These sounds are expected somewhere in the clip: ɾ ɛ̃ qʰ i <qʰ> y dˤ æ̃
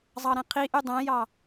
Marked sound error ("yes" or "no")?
yes